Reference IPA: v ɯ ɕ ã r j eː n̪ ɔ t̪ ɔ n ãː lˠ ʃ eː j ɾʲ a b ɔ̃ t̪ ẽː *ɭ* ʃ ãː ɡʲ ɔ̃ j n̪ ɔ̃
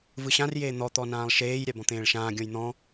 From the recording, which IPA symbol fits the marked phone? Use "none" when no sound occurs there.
ɭ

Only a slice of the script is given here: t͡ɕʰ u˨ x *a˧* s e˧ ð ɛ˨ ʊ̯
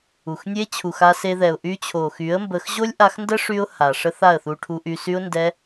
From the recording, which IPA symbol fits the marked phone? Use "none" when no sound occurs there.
a˧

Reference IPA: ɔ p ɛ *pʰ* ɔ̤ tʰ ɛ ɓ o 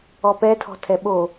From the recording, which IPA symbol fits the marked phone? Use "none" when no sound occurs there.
tʰ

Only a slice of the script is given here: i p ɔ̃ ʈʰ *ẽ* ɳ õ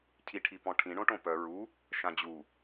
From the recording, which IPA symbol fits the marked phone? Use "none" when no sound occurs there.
ĩ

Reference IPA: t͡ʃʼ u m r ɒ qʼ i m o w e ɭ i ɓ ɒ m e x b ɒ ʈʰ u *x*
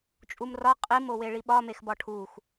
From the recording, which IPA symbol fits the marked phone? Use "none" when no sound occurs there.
x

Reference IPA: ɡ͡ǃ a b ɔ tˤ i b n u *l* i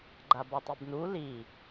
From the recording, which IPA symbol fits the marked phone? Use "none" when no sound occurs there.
l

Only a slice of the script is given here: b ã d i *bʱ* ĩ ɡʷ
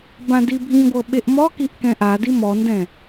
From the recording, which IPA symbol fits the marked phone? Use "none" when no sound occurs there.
bʱ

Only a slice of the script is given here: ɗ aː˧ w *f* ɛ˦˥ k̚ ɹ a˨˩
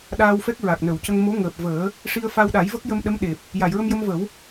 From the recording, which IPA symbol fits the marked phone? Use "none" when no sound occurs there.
f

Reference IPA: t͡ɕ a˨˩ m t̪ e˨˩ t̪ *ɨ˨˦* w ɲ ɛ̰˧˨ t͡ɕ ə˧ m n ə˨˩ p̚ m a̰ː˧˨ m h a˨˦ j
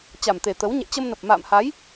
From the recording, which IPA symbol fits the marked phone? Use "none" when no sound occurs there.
ə˨˦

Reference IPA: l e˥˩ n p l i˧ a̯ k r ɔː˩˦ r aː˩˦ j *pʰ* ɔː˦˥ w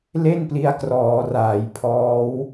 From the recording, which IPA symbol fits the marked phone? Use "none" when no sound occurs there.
pʰ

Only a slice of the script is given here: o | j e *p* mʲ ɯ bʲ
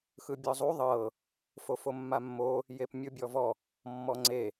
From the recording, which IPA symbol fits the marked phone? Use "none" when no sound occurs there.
p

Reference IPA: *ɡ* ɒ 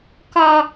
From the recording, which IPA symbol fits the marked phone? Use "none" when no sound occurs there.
k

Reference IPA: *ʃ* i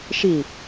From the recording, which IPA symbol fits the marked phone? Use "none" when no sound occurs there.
ʃ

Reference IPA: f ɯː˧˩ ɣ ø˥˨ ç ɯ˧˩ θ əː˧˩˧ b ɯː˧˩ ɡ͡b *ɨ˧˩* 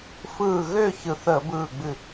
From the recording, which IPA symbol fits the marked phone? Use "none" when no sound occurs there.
ɨ˧˩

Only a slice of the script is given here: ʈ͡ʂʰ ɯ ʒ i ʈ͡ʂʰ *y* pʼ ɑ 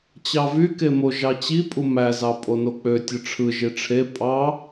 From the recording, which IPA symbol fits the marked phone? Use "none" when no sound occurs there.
e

